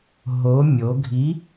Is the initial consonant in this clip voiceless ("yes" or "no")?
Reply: no